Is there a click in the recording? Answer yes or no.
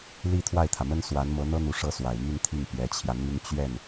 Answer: no